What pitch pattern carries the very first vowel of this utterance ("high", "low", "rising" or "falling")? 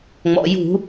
low